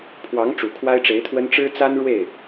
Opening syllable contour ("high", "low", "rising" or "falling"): rising